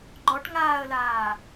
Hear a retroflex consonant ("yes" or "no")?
yes